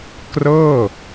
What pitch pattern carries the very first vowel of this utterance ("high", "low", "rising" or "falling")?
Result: falling